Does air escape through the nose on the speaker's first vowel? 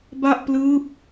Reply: no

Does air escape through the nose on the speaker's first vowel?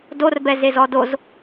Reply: no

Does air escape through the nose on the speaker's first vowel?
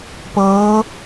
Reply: no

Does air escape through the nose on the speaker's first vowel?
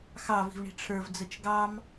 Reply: no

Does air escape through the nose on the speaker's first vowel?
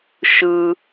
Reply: no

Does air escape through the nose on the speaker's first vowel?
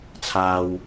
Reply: no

